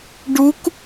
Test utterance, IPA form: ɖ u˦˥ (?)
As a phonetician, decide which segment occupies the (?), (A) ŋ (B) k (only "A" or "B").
B